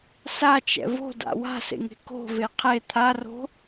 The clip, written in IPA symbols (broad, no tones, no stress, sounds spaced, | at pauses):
s a t͡ʃ ɛ̰ v o̤ d a̰ w a̤ s ḛ ŋ e̤ k o̤ v e qʰ e t̪ʰ a r o̤